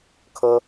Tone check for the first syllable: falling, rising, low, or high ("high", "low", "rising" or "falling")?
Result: high